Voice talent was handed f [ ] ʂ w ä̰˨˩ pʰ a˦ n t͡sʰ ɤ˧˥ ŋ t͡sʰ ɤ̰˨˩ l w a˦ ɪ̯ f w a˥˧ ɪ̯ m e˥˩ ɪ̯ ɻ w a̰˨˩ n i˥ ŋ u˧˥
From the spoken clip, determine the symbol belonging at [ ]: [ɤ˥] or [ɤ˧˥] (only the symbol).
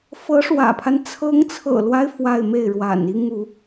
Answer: ɤ˧˥